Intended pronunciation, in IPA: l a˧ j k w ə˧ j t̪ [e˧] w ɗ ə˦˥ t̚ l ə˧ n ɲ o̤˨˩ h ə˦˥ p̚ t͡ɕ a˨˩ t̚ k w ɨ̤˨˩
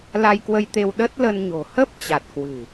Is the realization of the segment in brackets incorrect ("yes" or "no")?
no